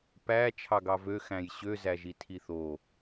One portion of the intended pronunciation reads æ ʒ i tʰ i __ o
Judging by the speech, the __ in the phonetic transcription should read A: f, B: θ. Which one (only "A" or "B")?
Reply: B